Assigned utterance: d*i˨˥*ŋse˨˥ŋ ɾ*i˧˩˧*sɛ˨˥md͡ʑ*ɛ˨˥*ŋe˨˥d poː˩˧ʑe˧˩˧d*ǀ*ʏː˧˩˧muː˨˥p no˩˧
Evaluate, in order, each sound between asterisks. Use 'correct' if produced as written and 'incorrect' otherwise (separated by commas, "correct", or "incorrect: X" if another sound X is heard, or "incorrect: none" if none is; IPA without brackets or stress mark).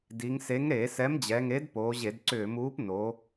incorrect: i˩˧, incorrect: e˧˩˧, incorrect: ɛ˩˧, correct